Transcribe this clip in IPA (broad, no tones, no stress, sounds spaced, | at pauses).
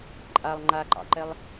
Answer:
ǃʼ a lˠ ŋ͡ǃ a ǃ ɑ̰ ǃ ɛ lˠ